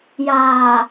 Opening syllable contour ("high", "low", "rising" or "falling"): low